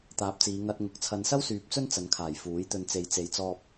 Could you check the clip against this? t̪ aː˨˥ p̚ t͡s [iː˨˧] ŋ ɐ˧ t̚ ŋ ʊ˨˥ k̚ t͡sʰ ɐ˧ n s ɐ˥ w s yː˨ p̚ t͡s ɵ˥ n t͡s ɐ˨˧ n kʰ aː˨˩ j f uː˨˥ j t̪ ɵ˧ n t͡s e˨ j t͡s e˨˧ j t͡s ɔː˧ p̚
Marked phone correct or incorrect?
correct